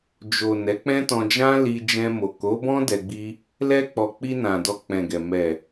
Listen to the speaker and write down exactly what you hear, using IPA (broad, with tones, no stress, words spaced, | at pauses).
d͡ʒo˨ nɛ˨˦k͡pɛ̃˦ tɔ̃˧ d͡ʒã˦li˧ d͡ʒɛ̃˧mo˨ ko˨˦bɔ̃˦ dɛ˧ɡ͡bi˦ | lɛ˧k͡pɔ˨ k͡pi˧nã˨ dɔ˧k͡pɛ̃˨ɡɛ˨ mɛ˨